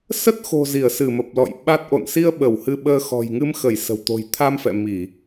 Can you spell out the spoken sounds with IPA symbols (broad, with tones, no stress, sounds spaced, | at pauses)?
s ə˦˥ t̚ x o̤˨˩ z i˧˩ ə̯ s ɨ˧˩ m ə˨˩ p̚ l ɔ̰˧˨ j ɓ a˦˥ t̚ ʔ o̰˧˨ n s i˧ ə̯ ɓ ə˧˩ w h ɨ˧ ɓ əː˧ x ɔ̤˨˩ j ŋ ɨ˧ m x ə˧˩ j s ə̤˨˩ w t̪ o̤˨˩ j t̪ʰ a˧ m f ɛ̰˧˨ m i˧˩˨